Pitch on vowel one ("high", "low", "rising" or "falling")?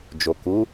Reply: low